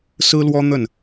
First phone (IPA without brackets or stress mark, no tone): s